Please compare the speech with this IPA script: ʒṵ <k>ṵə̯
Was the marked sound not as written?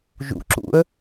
yes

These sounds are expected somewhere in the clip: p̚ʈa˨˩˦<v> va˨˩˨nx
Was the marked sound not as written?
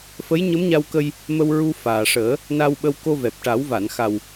yes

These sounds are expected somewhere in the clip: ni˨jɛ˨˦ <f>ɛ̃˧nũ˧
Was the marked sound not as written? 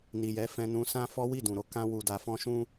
no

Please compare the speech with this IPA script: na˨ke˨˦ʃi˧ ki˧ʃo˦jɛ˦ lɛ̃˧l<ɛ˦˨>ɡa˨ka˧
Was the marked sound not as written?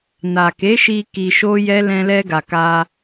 yes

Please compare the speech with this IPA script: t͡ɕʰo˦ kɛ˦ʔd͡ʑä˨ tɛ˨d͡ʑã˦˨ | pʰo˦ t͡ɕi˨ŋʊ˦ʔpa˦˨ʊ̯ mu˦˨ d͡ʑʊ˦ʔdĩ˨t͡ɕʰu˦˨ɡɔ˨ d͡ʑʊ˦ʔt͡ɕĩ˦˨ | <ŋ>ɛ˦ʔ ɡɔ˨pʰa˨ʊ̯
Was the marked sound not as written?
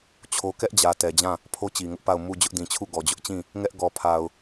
no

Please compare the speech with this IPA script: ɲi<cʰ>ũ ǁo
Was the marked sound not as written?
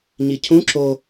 no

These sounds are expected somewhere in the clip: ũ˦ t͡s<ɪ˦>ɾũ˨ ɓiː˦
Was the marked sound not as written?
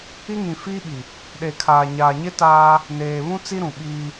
yes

